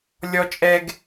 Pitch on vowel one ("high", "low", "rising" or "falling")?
high